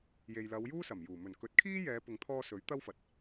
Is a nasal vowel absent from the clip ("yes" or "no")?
yes